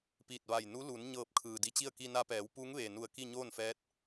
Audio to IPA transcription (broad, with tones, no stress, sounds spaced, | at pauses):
p iː˧˩ t̚ ʋ a˧˩ j n u˧˥ l u˩˧ n ɲ ɤː˧˩ p̚ kʰ ɯː˩ d i˧ t͡ɕ i˥˨ ə̯ k i˧ n a˧ p ɛː˩˧ w p uː˧˥ ŋ ʋ eː˩ n u˧˩ ə̯ k i˥˨ ɲ oː˥˨ n f ɛː˧˥ t̚